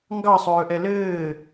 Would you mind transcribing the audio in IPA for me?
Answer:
ŋ ɡ ɑ sˤ ɵː ʔ ɛ l ɘː

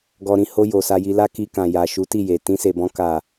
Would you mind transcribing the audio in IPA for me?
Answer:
ɡ ɔ˧ ɾ ĩ˧ h o˧ j o˨ s a˧ j i˧ l a˦ k i˧ k ã˨ j a˨ ʃ u˨˦ t i˦˨ j e˨ t ĩ˧ s e˨ b ɔ̃˧ k a˨

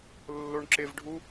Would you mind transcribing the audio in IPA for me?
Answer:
lː o ɳ ǁ ɪ v ɖʱ u

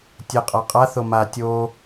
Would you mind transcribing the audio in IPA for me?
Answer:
tʲ ɘ qʼ a qʼ a θ o m a tʲ o

